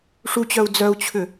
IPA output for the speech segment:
ʂut͡ɕœu̯ d͡zœu̯t͡ɕʰʏ

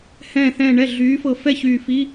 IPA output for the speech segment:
hɛ̃ː˧˩θɛ̃ː˧˩ɳɛ˥˩ ɮyː˨˥fɤ˧˩ fɛ˥˩ çyː˧˩fi˧˥˧

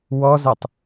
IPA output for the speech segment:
wɔzɛtˤ

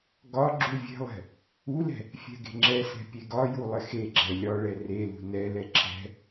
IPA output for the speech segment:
ɡɒ ɡ͡ǁuvʲe̤lˠɛ̤ | ulɛ̤ | fʲɛ̤ɡe̤ŋ͡ǁɛsɛ̤ pʲeɡɒju lˠɪxeɡ͡ǁɛ lʲɒɭɛ relṳ nɛlɛ ǁʰɛ̤

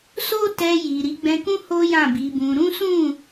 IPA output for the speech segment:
so˦tɛ˧ji˨ ɾi˨˦ɡ͡bɛ̃˧kũ˦ ho˦jã˦˨bi˨˦bũ˧ ɾũ˦sũ˦˨

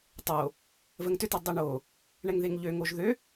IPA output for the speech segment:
tˤo | vəŋtʏt ədˤiɳo | ɳɛŋðeŋʎø ŋoʒðø

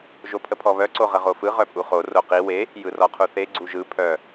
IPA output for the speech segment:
ʒopʰəpʰɔβœ ǀoʁəʁofɯ ʁœpʼuχo roqi we | jɯrɔqʰuθe ɡ͡ǀuʒɯ pʰœ

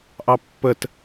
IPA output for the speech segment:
ʔɑpːət

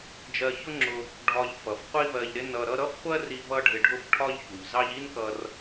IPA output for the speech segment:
d͡ʒɜ˧çʊ˥ŋ͡ǁʊ˧ | ɖʱɒ˧ʎ fʌ˩fqʷi˥vɜ˧ʎɾɪ˥ nʌ˧ɾʌ˥ ɾʌ˥fχʷɜ˥ri˧ vʌ˥ɖʱɪ˧ɖʱʊ˥f ʈʰɒ˥ʎçu˩ʎzɑ˥ʎ i˥n kʌ˧r

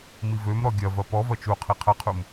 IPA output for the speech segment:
mivømɾɔ ɡʲɐvɐ pɔvɐ t͡ʃuqʰi qʰɐqʰum

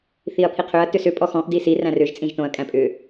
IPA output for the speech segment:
θiɐ̯pʰiqʰʏɐ̯ tʏsʏ pʼɔxɔ̃ʔ disi ræ̃rʏʒ t͡sʼĩʒtõɐ̯ kʼæ̃pʼʏ

